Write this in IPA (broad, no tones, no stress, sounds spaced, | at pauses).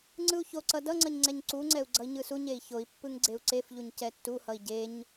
ŋ͡ǀ ɯ u̯ ç o ǀ ʌ d ʌ ŋ͡ǀ ʌ ɲ ŋ͡ǀ ɛ ɲ ǀ u ŋ͡ǀ ɛ u̯ ɡ͡ǀ ʌ i̯ ɲ ɯ s u ɲ e i̯ ç o i̯ pː ɯ ŋ ɡ͡ǀ e u̯ ǀ e f ʎ u ɲ c ɛ tː u h ʌ i̯ ɟ e ɲ